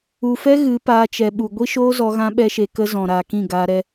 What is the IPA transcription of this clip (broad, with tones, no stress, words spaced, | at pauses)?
u˨fɛ˦ ɣɨ˨˦paː˧t͡ʃɛ˨ɓu˨ ɡʷi˦ʃoː˦zɔ˧ ɣã˦ɓɛ˦ʃe˧ kə˧ zɔ̃˨ɾaː˨kĩ˦˨ ɡaː˧ɾɛ˧